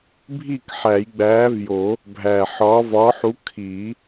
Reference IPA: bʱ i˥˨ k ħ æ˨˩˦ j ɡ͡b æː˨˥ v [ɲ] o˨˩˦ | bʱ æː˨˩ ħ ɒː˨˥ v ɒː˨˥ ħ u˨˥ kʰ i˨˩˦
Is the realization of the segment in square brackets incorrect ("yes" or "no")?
yes